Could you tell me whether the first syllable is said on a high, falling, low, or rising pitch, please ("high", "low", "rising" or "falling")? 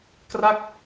falling